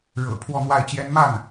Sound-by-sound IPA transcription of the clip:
ɻ ɤ̰˨˩ pʰ w ɔ˥˧ n̪ w a˥˩ ɪ̯ t͡ɕ j ɛ˥ n m a˥˩ n

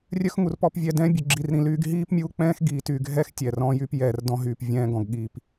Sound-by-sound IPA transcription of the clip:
rʲ œ˦ x ŋ u˨ r p ɔ˨ p vʲ ɛ˨ d ɛ̃ː˦ bʲ u˨ ɡ͡ǁ i˨ r ɾ ĩ˨ l yː˦ ɡ ɦ iː˦ p mʲ u˦ k͡p ɛ̃ː˦ x ɡ iː˨ t y˨ ɡʱ ɛː˦ x tʲ ɛ˨ r ɔ̃˦ j y˦ p j ɛː˨ r d ɔ̃˦ ɦ yː˨ p vʲ ɛ̃ː˦ ɡ ɔ̃˨ ɡ ɠ iː˨ p

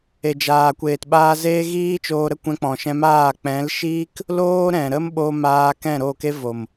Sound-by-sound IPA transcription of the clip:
e˨ d͡ʒ aː˨ kʷ eː˨ t ɓ aː˧ z eː˦ ɣ iː˦ t͡ʃ oː˧ ɾ ə˦ kʷ ɛ̃˧ k͡p ɔ̃˨ ʃ ɛ̃˧ m aː˦˨ k͡p ɛ̃˨˦ l ʃ iː˦ k | l oː˦ ɾ ɛ̃˨ ɾ ə˦ m ɓ o˧ m aː˧ k ɛ̃˦˨ ɾ o˦˨ k e˦ v o˨ m

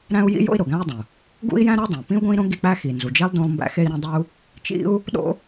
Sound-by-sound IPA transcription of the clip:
ɾ æ̃˥ u̯ j ḭ˥ j o̰˥ i̯ ɾ o˩ ɡ æ̃˥ i̯ dˤ ũ˩ | ɡ ṵ˥ i̯ j æ̃˥ ɾ u˥ dˤ ĩ˩ p ĩ˥ u̯ ɡ õ˥ i̯ ɾ õ˥ ɡ i˥ k͡p æ˥ x i˩ n z u˩ d͡ʒ e˥ lˠ d õ˥ lˠ m b æ̰˥ x e˥ i̯ ɾ ĩ˥ dˤ u˥ | t͡ʃ ḭ˥ u̯ | ɗ o̰˥

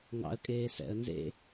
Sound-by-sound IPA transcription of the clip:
ŋ ɑ̰ ə̯ kʼ eː s ɛ̰ ə̯ n z ḛ

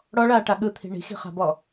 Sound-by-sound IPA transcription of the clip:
ɽ ɔ ɭ aː ʈ a ɠ ɯ t̪ʰ i̤ ɳ i̤ x i̤ χ a̤ b ɔ

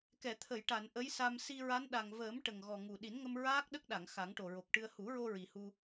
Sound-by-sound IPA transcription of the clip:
k ɛ˨˩˨ t̪ʰ ə˨˩˨ j ʈ a˨˩˨ n ʔ ə˧˥ j s a˧ m s i˧ ɹ a˧˥ n ɗ a˨˩ ŋ v əː˨˩˦ m ʈ ə˨˩ ŋ ɣ ɔ˨˩ ŋ u˨˩ ɗ i˨˩˦ n ŋ ə˧ m ɹ aː˦˥ k̚ ɗ ə˦˥ k̚ ɗ a˨˩˨ ŋ x a˨˩˦ ŋ ʈ o˨˩ ɹ o˨˩ k̚ ʈ ɨ˧ ə̯ h u˨˩˦ ɹ o˧ ɹ i˨˩ h u˧

